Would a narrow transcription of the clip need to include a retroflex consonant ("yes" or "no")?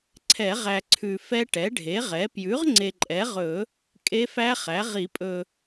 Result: yes